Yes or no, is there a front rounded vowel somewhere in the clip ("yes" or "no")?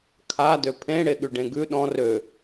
yes